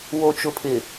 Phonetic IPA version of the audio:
w o˨ t͡ʃ ʊ˨ pʰ ɪ˨

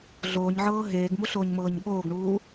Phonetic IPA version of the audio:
ɮ oː ɲ ʕ ɤː ɦ eː ɡ m u ɬ oː ɲ m ɤː ɲ ɠ oː ɡ ɳ uː

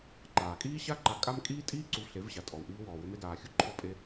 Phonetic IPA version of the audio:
ǃ aː˨ kʼ iː˦ ɕ a˦ ǃ a˨˦ kʼ a˦ m kʼ iː˦ tʼ iː˦ ǀ u˧ v ɬ e˨˦ v ɕ a˨ tʼ ɔ˨ w ʔ iː˧ w ɔː˨ w ʏ˧ m e˧ d aː˨ xʲ u˦ ǃʰ ɔ˧ pʼ e˧

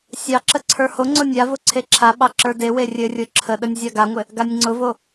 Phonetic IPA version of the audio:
sʲ ɑ ǁ ə ǀʰ ə˞ h o ŋ͡ǀ ʊ nʲ a v ʊ ǀʰ e ǁʰ a ɓ ɑ ǁ ə˞ d e w e rʲ ɘ rʲ ʊ ǁʰ ə ɗ ə nʲ zʲ a ɡ a ŋʷ ɘ | ɡ a nʲ ŋ͡ǀ ʊ v o

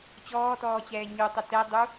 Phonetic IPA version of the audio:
t͡ɕ ɔː t ɔː t͡ɕ ɛː ɲ u tˤ ə t ɛ dˤ u

